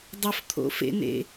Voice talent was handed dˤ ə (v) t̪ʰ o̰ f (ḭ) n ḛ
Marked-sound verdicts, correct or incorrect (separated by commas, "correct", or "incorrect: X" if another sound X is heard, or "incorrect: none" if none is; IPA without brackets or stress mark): incorrect: f, incorrect: ḛ